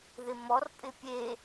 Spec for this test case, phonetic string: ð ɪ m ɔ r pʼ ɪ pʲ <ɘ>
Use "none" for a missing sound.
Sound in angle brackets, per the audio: e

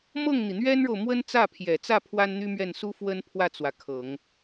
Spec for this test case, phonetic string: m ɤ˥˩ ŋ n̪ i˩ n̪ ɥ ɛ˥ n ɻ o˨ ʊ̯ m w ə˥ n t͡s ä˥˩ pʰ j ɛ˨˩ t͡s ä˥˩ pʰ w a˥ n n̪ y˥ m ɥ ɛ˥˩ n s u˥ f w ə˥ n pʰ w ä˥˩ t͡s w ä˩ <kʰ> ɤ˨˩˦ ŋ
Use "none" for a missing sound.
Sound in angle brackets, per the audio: kʰ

